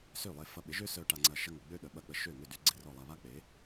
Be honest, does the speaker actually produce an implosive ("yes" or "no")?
yes